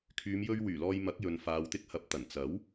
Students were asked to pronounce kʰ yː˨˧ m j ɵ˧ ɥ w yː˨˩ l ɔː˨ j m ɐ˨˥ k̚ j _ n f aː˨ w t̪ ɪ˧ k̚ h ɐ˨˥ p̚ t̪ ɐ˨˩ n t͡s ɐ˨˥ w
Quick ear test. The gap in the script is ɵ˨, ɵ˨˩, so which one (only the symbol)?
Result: ɵ˨